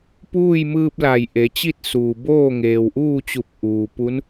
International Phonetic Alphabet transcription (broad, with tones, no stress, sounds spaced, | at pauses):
p uː˥˨ j m ɯː˧ p̚ l a˧˩ j ʔ e˩˧ t͡ɕ i˥˨ t̚ s uː˩ b oː˥˨ ŋ eː˩ w ʔ uː˥˨ t͡ɕ u˧˩ p̚ ʔ uː˩ p u˧˥ n